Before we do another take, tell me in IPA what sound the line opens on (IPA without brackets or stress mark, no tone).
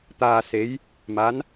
t̪